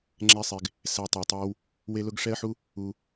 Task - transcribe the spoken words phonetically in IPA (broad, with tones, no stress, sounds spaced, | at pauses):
ŋ͡ǁ ɛ˦ sˤ e˧ ɡ | s ɛ˧ tˤ u˨ tˤ ɛ˦ w | w e˦ l ʊ˦ ɡ ʂ ɛ˦ ə̯ ħ u˦ | u˧